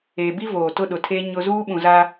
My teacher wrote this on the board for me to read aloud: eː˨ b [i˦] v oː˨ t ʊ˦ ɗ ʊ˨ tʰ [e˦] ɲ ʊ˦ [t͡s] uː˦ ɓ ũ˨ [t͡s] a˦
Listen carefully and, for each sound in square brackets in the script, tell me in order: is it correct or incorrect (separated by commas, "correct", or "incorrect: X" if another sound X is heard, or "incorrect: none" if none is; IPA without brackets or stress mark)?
correct, correct, incorrect: z, incorrect: z